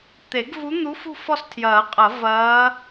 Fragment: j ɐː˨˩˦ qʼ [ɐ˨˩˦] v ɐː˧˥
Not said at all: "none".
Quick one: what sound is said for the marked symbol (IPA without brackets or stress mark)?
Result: ɐ˨˩˦